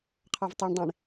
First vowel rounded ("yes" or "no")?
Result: no